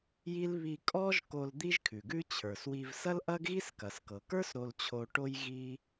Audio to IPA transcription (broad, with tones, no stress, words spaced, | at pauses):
ji˥l βi˧kʼɔ˥ʒko˧l d̪i˥ʒkʰʉ˩ɡʉ˥t͡ɕʰə˞˩s wi˧v sɐ˥lʔɐ˥ɡɣi˥s kɐ˩skɤ˩kə˞˥s ɾo˧lt͡ɕʰo˧ʈo˥j ɣi˥